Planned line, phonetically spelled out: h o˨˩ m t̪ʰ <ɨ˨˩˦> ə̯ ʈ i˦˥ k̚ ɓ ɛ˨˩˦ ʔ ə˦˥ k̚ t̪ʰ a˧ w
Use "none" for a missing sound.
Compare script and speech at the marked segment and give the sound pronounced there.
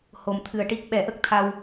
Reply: ɨ˨˩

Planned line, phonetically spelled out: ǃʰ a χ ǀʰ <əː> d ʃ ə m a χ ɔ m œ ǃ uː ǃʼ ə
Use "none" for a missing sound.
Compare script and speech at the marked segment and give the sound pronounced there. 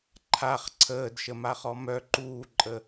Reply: əː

